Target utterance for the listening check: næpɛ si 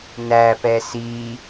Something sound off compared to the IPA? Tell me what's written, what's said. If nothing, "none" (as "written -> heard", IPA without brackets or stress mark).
none